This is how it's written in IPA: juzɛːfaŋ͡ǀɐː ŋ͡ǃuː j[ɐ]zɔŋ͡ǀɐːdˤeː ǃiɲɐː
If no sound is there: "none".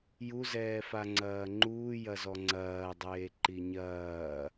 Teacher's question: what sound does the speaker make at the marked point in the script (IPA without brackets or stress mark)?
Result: ɐ